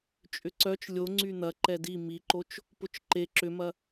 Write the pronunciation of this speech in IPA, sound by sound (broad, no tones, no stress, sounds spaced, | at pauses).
t͡ʃʼ ʏ ǀ œ t͡ʃ lʲ o ŋ͡ǀ y n̪ ɐ ǃ ɛ d i m i ǃ o t͡ʃ | p ʊ t͡ʃ ǃ e ǁ ʏ m ɐ